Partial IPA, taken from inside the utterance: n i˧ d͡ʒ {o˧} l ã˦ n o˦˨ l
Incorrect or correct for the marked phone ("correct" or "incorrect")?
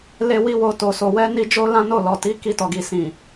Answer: incorrect